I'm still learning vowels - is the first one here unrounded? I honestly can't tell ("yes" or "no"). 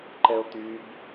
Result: yes